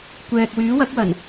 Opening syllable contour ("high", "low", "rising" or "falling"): low